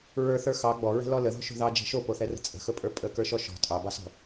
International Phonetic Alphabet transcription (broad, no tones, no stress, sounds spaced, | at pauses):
ɹ ə˞ θ ə˞ x ɑ ɡ͡b ɔ ɹ ɛ̤ l ɔ l ə ð ɔ̤ ʃ o̤ ð ɑ d͡ʒ ɛ̤ ʃ o p o θ ɛ r ə̤ t͡sʼ ə̤ x ɵ pʼ ə˞ pʼ ə k ə˞ ʃ ɔ ʃ ɔ̤ tʼ ɑ b ɑ s ɔ̤